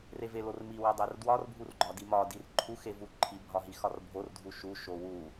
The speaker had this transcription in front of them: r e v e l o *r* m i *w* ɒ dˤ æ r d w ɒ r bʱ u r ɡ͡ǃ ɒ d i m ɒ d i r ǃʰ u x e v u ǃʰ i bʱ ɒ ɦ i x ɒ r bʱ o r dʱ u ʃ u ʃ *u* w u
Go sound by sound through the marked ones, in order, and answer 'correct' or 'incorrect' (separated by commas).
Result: correct, correct, incorrect